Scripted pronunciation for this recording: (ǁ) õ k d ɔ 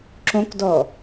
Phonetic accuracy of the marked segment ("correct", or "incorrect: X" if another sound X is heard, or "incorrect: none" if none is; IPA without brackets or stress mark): correct